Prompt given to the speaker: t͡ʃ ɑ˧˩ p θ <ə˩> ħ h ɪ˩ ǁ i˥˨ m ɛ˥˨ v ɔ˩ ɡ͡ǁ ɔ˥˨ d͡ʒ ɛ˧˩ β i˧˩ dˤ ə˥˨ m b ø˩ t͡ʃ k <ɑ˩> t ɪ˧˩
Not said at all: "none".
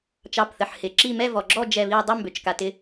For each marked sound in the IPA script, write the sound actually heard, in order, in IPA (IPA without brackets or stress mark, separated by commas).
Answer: ə˩, a˩